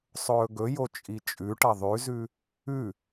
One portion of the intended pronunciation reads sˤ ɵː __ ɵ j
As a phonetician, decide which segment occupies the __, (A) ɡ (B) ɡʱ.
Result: A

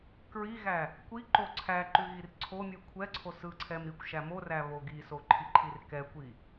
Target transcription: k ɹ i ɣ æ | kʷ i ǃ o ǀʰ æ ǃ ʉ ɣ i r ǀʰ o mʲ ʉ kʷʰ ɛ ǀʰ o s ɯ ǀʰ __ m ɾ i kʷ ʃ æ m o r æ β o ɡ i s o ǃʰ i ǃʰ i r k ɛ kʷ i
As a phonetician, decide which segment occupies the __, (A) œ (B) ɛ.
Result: B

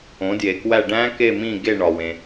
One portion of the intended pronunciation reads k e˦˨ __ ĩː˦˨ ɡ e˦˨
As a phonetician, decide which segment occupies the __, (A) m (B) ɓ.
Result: A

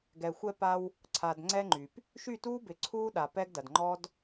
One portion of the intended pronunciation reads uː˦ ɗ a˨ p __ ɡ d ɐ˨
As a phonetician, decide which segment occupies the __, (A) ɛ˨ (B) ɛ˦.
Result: B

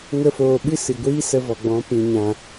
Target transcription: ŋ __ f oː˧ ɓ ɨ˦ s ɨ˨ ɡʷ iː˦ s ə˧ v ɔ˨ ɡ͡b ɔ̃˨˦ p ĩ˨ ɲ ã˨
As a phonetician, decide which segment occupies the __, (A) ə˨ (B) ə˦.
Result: B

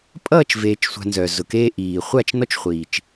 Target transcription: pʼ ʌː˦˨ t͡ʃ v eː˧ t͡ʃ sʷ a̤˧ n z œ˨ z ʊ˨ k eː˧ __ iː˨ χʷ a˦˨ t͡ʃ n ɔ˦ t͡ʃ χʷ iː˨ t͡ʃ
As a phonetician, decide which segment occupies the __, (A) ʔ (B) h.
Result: A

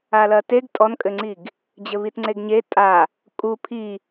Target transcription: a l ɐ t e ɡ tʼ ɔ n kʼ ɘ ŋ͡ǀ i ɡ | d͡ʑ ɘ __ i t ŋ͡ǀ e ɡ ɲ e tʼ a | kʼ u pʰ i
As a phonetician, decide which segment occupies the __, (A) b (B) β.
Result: B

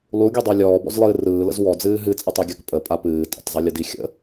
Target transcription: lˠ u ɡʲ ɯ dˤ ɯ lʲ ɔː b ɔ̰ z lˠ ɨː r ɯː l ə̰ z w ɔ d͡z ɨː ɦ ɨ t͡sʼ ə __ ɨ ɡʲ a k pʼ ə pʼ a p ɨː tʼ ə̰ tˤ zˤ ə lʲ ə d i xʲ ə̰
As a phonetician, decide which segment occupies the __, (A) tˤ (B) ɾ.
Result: A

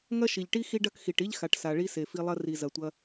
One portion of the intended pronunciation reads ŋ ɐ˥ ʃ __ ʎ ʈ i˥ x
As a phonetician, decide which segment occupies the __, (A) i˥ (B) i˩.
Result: B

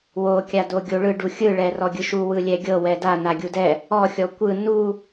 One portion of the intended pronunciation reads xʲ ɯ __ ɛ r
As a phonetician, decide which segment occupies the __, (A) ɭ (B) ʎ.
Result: A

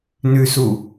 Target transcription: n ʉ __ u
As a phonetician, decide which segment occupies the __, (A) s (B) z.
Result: A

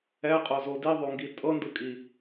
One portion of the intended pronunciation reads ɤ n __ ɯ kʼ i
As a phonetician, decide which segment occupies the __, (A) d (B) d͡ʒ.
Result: A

